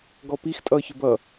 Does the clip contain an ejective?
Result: yes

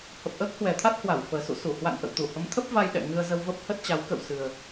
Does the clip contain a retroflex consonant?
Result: no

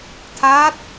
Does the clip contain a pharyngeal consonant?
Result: no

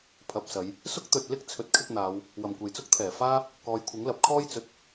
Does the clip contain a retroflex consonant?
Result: no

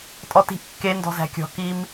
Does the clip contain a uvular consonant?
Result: no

